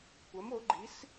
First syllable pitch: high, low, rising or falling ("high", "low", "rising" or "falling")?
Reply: rising